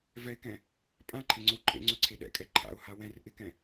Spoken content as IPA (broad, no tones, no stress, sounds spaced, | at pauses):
v ɛ ɪ̯ k ɛ̃ | pʼ ã ǃʰ e ŋ͡ǀ ɵ w ǃʼ ḛ ŋ͡ǀ ɵ ǀʰ e ɗ ɛ̰ kʼ ɛ ǃʰ a̰ ʊ̯ h a w ɛ̃ r ʔ ɪ k ɛ̃